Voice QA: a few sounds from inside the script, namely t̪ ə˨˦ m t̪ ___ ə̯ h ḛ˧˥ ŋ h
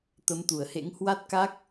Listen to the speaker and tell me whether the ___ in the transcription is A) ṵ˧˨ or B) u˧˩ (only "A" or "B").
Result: B